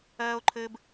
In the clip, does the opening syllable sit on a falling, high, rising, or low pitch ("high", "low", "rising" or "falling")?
high